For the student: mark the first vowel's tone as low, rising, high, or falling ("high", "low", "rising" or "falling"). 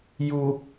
low